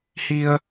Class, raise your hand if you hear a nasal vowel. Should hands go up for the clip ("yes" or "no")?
no